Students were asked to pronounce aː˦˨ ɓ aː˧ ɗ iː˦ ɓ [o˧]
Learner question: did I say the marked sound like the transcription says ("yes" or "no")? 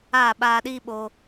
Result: yes